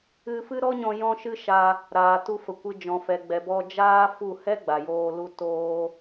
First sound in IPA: ɨ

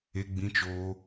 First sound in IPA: e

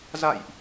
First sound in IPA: z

